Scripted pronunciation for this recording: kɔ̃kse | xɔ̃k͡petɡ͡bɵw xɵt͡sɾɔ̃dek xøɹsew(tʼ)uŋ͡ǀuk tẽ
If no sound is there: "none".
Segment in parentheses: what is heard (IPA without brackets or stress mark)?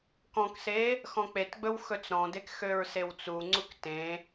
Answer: t͡s